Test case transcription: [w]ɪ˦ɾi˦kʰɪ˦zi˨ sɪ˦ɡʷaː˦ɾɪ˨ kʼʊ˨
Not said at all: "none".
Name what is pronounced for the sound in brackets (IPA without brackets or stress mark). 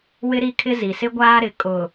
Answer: w